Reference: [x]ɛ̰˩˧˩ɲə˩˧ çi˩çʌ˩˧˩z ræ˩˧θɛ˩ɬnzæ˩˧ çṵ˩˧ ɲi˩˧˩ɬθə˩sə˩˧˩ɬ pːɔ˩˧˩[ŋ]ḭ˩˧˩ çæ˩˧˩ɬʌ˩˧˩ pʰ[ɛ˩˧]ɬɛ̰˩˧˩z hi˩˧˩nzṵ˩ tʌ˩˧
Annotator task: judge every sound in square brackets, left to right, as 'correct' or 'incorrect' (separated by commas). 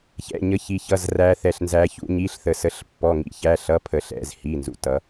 incorrect, correct, incorrect